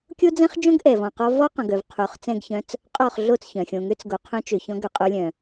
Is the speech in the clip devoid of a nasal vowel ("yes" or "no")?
no